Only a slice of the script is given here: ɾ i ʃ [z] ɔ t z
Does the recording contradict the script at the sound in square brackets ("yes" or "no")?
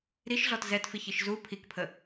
yes